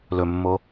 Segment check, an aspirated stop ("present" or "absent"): absent